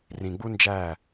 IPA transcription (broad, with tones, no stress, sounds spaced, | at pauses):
r ĩ˨ ɡ͡b u˦ n d͡ʒ æ˦˨